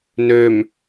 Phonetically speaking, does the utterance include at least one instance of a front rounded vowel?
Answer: yes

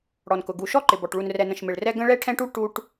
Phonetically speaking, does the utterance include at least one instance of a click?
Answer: yes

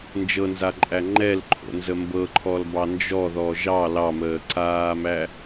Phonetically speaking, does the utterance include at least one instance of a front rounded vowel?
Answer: no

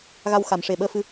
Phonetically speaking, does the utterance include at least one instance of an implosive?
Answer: yes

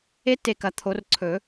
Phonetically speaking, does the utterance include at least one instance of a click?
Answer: yes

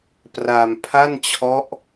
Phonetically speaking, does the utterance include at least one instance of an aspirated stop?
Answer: yes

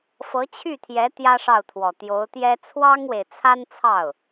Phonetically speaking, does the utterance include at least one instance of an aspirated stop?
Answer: yes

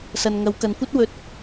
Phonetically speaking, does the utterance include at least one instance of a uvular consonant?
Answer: no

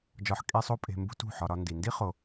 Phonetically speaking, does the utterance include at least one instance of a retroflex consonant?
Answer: no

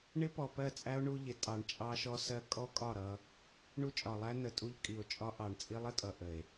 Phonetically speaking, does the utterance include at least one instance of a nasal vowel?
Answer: no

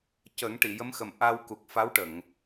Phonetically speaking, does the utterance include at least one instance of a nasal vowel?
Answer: no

